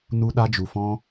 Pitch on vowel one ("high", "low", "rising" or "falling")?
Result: high